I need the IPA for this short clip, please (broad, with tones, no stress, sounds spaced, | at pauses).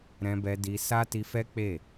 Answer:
ɾ ɛ̃˧ b ɛ˧ d i˧ s a˦ t i˧ f ɛ˦ k͡p e˦˨